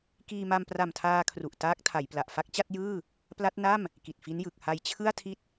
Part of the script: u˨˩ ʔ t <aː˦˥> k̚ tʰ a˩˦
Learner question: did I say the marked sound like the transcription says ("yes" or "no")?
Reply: yes